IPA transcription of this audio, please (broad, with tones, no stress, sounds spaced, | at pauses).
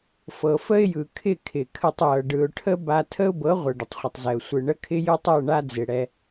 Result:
f ɤ˨ f ə˦ ɪ̯ j ɯ˨ kʰ ɪ˦˨ kʰ ɪ˨ kʰ ə˧ tˤ j ɤ˨ ɖ ɯ˨ ʊ̯ ʈʰ ə˦ b a˧ tʰ ə˦ ʊ̯ b ɤ˨˦ ʁʷ ɤ˨ ɖ ə˨ tˤ χʷ ɪ˨ tˤ z ɛ˨ ʊ̯ sʷ ɯ˨ ɳ ə˧ kʰ ɪ˧ j ɯ˦ tˤ ɤ˦˨ ɳ a˦ d͡z ɪ˨ ɽ ɛ˧